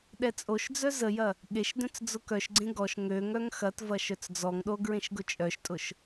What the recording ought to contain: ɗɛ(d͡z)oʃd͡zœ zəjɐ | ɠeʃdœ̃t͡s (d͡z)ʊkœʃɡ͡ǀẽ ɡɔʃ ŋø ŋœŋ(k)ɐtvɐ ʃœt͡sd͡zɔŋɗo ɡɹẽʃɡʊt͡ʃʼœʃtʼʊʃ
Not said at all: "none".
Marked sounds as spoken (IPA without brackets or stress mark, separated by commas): t͡sʼ, d͡z, x